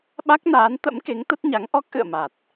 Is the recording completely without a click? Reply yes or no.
yes